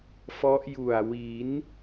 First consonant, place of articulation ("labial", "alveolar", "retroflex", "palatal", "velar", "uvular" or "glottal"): labial